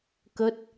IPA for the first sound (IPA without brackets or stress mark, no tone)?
k